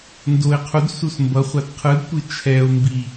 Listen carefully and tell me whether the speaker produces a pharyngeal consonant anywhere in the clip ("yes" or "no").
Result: no